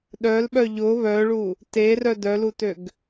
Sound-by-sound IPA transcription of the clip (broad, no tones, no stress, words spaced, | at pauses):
ɗœlɓœ ʎʊ βœɭu | terœ dœlutøɡ